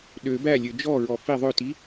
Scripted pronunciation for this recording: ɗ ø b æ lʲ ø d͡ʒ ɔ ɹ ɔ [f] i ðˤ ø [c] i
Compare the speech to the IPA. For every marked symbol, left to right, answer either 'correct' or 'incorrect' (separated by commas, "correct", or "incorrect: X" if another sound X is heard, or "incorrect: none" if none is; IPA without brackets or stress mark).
correct, incorrect: t